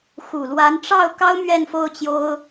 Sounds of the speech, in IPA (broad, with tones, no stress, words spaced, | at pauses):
xu˨˩lwa˧˥n ʈ͡ʂɑ˥˩ʊ̯ kɑ˥ʊ̯ mɥɛ˥˧nfo˥˩ʊ̯t͡ɕjo˥ʊ̯